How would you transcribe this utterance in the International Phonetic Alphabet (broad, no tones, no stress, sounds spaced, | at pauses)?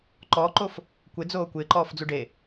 ǃ ɔː ǃ o f | kʷ ɪ d͡z oː kʷ ɪː ǃ ɔː f d͡z u ɖ e